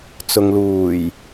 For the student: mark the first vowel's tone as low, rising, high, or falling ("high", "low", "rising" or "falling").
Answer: low